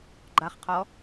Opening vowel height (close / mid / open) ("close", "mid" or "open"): open